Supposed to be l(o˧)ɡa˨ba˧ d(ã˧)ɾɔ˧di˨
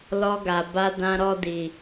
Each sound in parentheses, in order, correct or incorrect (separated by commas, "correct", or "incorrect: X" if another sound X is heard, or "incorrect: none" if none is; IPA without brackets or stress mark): incorrect: ɔ˧, correct